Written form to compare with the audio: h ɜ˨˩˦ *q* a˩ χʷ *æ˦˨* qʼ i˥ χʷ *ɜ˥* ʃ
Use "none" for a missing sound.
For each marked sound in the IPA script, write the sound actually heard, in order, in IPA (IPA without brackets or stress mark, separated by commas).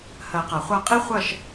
q, a˦˨, ɜ˦˨